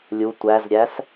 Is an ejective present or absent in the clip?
absent